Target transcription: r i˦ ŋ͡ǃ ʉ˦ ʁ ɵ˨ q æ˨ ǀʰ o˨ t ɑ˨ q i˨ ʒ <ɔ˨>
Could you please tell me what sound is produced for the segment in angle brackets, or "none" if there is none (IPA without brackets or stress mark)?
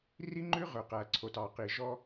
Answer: ɔ˦